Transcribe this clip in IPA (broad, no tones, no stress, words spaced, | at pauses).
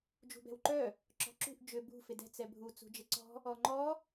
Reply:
d͡ʒṳbɛ̤wǃœ | ǁɔ̤ǁṳʔ d͡ʒʏ bṳ fɪdɛ̤ t͡sɛbʱu t͡sṳd͡ʒɪǀɔ̤ | ɔŋ͡ǃɔ